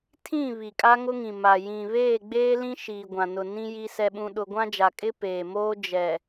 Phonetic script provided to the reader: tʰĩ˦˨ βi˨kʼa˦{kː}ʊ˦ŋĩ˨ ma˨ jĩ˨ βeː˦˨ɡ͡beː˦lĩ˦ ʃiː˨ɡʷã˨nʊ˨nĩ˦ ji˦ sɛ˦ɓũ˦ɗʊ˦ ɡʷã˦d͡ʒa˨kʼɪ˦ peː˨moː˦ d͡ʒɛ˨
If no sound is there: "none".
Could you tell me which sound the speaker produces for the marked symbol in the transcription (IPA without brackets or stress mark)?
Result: ŋ